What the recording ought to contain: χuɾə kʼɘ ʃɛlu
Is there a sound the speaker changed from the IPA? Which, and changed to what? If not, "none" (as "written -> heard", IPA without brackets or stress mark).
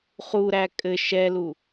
ə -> æ